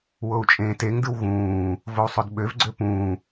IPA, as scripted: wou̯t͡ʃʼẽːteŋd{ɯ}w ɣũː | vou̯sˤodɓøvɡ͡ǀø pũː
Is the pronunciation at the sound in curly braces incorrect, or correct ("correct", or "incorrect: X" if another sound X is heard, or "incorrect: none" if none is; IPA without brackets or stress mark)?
correct